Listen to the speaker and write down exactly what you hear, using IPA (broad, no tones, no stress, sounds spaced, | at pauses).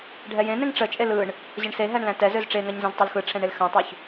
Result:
ɖʱ ɛ j ẽ n ẽ ŋ ʈ͡ʂ ə t͡ʃʼ e l ɯ ɳ | ʑ ə ɳ s e ɦ æ ɳ l æ̃ t ɛ z ø z ʈ͡ʂ e ŋ a ɲ z ə̃ z tˤ a l x ɯ ʈ͡ʂʰ ɛ̃ ɳ e l x ã tˤ ø ç